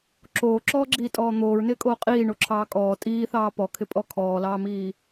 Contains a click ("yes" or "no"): yes